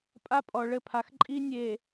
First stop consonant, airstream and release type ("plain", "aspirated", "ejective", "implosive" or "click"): ejective